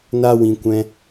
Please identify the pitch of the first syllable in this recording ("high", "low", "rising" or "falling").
high